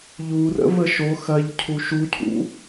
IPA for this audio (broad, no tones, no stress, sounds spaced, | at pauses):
ʎ u r ə̰ v ə ʃ o x ɐ ʎ cʰ u ʃ u cʰ ṵ